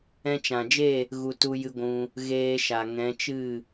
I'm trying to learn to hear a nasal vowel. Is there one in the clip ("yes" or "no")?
yes